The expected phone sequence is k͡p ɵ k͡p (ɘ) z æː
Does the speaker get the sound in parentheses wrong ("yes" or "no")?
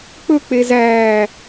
yes